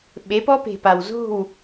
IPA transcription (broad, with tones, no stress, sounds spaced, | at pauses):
ɓ e˨˦ p ɔ˦ p e̤˨ p a˨ w z o̤˦˨ w